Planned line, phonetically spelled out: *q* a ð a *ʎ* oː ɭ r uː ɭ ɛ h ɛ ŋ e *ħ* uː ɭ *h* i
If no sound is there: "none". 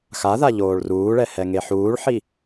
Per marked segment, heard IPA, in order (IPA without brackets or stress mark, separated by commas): x, ʎ, ħ, ħ